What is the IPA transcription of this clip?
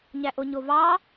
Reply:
ɲæʔoɲovɑ

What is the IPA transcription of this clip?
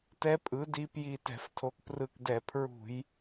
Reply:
tɛ˧˥pʼɯ˩˥di˧pji˧˩ tɛ̤˧˩˧ftʰo˩˥kprɯ˧˩kdɛ˧˩˧ pʰɹṳ˧˩˧j

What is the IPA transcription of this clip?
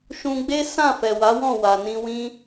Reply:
ʃũ˧ɡ͡be˦ sã˦˨ fɛ˨wa˨˦wɔ̃˦˨ wa˨nĩ˧wĩ˦

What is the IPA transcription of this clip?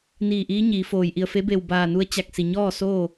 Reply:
niː˧˩ʔiː˧˥ ɲiː˩˧foː˩jʔi˧˩ə̯ fe˧˥be˧˩wbaː˧˩nu˧ə̯ t͡ɕa˧˩k̚ si˩ɲɔː˥˨soː˥˨

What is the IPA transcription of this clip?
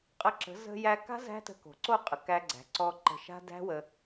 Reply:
qʼə˧ǁə̤˨˦ zə̤˧jæ˧ka̤˦ zæ̤˦tə̤˧ ko̤˨ǀo˦˨qʼə˨ kæ˧ɡ͡ǀæ̤˨ǀɔ˧ ǃə̤˧ ʃa̤˦ dæ̤˦wə˧

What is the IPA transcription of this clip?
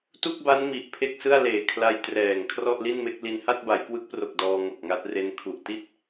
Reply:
tu˥˩k̚ba˦˥n mi˨˩ʔpʰe˥˩k̚sɯ˥˩a̯ leː˨˩kʰla˧j trɛː˨˩ŋ kʰrɔ˥˩ʔli˥˩nme˥˩k̚ li˧n ha˥˩t̚ba˩˦jkwɯ˦˥k̚pro˨˩k̚ dɔː˧ŋo˨˩k̚ŋa˦˥t̚re˦˥n kʰu˨˩ʔ ti˥˩t̚

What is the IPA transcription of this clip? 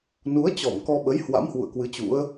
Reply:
nu˨˦ə̯t͡ɕɔ˧˩m kɔ˧ɓə˨˦j hwa̰˧˥mhwṵ˧˨ə̯ kwɨ˨˦t͡ɕṵ˧˥ə̯

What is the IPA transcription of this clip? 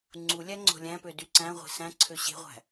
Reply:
ŋ͡ǀulʲæ ŋ͡ǀo̤lʲæ̃pø dyǀæ̃ʁʷe̤ sæ̃ ǀʰøɕe̤ʁʷæ̤

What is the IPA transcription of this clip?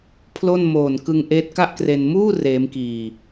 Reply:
pʰlo˥˩n moː˨˩n kɯ˧ŋʔeː˦˥t̚ka˥˩ʔkre˧n muː˥˩ reː˦˥m kiː˧

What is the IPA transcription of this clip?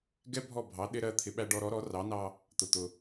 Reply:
ɡɛ˥ bʱɔ˥˩ bʱɑ˩˥ ɗɪ˧ɾɜ˧ t̪ʰɪ˩˥ɓæ˧ɖɔ˧ɾɔ˩˥ ɾɔ˩˥rɑ˩˥nɑ˧ | t̪ʊ˩t̪ʊ˩

